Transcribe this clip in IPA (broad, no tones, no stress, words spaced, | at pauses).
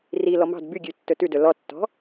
ri lɔmɑ̤d byɡʲʉ tːɵtʉ dɵlɔtːɔ̤